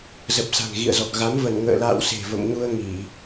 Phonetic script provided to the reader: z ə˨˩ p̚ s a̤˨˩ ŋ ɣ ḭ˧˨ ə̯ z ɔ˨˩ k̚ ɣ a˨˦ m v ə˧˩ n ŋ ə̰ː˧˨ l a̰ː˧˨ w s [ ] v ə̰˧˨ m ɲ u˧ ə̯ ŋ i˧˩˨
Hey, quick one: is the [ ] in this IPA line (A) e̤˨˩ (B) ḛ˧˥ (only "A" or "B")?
A